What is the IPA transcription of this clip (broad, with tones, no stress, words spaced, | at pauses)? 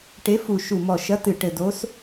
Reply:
ʈe˨˦fu˨˩ ʃu˨˩mɔ˨˩ʃɐ˨˦tɨ˨˩ ʈɘ˨˩do˨˦s